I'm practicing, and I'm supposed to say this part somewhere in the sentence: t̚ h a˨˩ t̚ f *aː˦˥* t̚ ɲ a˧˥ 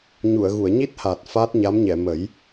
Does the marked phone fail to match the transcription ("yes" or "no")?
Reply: no